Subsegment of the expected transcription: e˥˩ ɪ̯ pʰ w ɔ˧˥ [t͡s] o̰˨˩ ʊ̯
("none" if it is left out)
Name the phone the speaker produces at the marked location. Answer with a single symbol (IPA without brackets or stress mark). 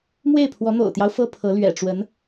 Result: n̪